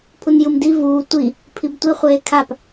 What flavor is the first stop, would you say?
aspirated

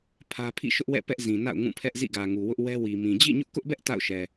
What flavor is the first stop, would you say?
aspirated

